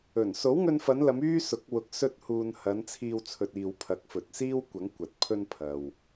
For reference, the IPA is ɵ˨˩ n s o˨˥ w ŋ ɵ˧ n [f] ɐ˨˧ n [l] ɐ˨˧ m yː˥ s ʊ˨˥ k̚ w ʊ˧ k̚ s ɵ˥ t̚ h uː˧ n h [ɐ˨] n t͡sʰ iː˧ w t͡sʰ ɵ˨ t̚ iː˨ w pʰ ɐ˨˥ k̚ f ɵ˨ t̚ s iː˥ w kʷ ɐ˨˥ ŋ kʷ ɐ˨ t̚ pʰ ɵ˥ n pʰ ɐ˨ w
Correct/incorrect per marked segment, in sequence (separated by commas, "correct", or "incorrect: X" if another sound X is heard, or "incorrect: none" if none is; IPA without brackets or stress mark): correct, correct, incorrect: ɐ˨˧